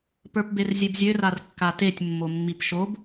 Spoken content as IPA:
pə˞pberzʲebzʲø rarkːatetʲ mːomːipʃob

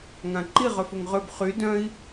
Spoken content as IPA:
ŋãǃi ʁœfoŋʁøb χy dœ̃i̯

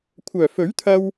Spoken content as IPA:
kʷʰœː˨˩fɵ˨˥ɥt̪ʰɐ˧w

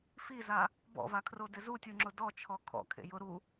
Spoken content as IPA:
fiza | bɔ̰vakʰro dɪzutʲuŋ͡ǁʊ dɔt͡ʃʰɔ kʰɔ̰ kʰḛjʊ ɾu

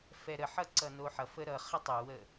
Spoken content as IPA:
fɛɾəħʌ ǀʌnoħʌfə ɾʌ χətˤowə

